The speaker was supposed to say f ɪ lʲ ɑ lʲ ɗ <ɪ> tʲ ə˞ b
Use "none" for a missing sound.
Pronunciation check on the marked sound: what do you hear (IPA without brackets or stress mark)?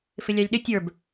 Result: ɪ